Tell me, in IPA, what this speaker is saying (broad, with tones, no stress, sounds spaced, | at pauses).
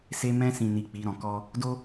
s e˧ m ɛ̃˧ s ĩ˨ n i˨ k͡p i˨˦ ɾ ɔ̃˧ k ɔ˦ | d o˦